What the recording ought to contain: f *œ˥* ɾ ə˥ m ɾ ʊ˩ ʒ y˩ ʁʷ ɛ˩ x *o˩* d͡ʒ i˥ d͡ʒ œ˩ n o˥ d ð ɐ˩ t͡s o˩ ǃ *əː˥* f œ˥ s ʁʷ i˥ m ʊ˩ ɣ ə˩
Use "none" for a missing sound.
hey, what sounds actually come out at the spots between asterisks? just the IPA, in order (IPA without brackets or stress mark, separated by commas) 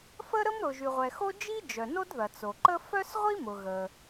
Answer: ə˥, o˥, ə˥